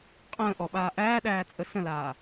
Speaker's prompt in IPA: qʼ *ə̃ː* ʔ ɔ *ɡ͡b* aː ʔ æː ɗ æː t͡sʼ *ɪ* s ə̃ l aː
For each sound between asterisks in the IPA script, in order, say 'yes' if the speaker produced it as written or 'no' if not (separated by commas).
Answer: yes, no, no